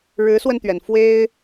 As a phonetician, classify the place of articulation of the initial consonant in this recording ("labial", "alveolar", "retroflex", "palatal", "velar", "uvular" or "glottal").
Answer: retroflex